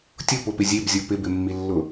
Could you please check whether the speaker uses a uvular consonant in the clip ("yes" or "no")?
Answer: no